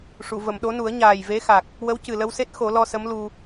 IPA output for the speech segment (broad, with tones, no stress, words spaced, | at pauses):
ʂu˨˩˨və˨˩˨mɗo˧˥nu˨˩˦ə̯ ɲaː˨˩jve˧˥xa˨˩k̚ | wə˧˥wcɨ˨˩lə˧wse˦˥t̚ xo˨˩˦lɔ˧sə˧˥mlu˧